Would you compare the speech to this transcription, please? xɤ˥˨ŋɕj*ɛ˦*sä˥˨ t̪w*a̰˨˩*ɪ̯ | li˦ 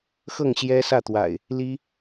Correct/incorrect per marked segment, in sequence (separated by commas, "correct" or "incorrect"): correct, correct